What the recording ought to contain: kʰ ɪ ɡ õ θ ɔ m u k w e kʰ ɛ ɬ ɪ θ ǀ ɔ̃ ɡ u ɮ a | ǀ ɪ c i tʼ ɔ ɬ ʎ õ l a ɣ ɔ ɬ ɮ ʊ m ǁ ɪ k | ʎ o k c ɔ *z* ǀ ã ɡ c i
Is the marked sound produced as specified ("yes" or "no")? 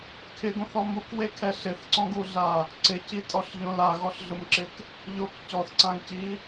no